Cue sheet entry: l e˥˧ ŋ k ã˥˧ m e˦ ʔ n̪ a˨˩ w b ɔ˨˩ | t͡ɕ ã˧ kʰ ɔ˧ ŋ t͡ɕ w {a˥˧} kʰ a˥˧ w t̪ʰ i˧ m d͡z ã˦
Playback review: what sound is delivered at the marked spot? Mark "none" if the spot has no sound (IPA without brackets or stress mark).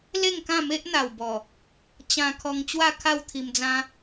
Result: a˥˧